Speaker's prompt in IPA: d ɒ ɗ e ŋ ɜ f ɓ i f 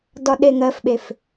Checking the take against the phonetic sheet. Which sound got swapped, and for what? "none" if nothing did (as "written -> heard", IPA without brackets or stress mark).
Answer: i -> e